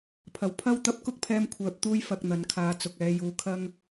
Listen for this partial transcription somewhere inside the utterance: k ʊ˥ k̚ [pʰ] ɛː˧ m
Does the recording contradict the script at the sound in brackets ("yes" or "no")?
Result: no